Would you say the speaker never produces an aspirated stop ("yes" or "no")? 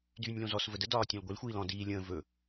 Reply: yes